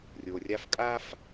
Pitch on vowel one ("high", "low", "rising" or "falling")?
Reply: low